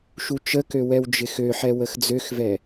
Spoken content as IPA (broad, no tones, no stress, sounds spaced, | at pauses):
ʃ u t͡ʃ ə k ø w ɛ w d͡ʒ ɪ x ø ħ ɛ w ə x d͡z ø x v ɛ